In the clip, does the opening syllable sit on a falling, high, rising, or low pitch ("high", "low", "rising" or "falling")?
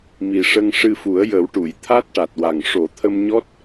low